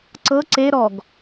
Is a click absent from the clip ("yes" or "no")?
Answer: no